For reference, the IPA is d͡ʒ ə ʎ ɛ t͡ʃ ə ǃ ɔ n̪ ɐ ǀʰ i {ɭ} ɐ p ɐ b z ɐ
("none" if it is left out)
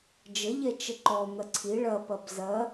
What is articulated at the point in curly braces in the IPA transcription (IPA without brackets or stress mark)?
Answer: ɭ